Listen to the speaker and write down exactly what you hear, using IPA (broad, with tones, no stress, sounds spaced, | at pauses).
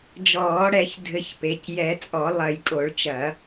d͡ʒ ɔː˨˩˦ ɽ ɛ˨˩˦ ç dʱ ɘ˨˩˦ ç p e˩˧˩ c j ɛ˨˩˦ t͡sʼ ɔ˨˩˦ lˠ ɐ˨˩˦ j kʼ o˨˩˦ ɭ t͡ʃ ɐ˨˩˦